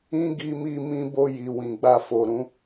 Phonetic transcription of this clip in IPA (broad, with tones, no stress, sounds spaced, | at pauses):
ĩ˦ ɡ i˧ m i˧ m ĩ˧ b o˧ j i˨ w ĩ˨ ɡ͡b a˧ f o˨ ɾ ũ˨˦